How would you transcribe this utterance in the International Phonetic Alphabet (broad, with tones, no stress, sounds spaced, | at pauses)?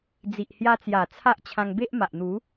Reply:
d͡z i˨ ʔ h j a˧ t͡s j a˨˩ t͡sʰ a˦ ʔ t͡ɕʰ ã˧ ŋ b e˦ ʔ m a˨ ʔ n̪ u˨˦